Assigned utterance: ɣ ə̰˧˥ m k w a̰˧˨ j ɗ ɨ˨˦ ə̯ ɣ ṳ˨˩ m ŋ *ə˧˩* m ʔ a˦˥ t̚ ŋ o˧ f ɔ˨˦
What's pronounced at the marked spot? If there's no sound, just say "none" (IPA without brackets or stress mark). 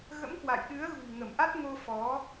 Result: ə˧˩